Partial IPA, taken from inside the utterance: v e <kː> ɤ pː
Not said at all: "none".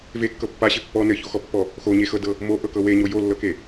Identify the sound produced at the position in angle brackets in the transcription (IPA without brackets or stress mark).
kː